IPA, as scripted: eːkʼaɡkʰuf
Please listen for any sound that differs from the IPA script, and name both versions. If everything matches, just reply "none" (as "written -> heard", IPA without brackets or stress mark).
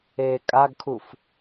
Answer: none